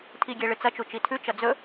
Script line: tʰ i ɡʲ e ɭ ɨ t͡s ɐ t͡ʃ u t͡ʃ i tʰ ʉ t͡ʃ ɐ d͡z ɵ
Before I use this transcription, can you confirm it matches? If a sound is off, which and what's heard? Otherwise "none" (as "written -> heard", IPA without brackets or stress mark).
none